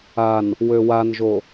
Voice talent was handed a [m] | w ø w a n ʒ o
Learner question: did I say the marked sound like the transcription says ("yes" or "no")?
no